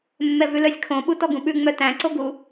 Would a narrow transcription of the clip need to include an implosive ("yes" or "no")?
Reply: yes